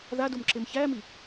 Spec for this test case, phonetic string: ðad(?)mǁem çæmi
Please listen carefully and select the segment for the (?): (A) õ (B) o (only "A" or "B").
B